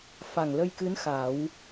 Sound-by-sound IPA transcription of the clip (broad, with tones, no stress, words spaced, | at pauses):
fa˨˩ŋlə˧jkɨ˧˥n xa˨˩˦w